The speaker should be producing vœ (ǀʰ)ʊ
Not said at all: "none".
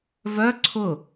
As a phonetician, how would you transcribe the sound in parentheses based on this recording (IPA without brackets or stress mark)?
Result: ǀʰ